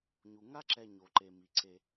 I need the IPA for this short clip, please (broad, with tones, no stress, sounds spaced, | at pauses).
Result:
ɲ u˩ ŋ a˥ ǁ ɛ˨ ɲ o˩ ǃ e˩ m i˩ ǀ e˨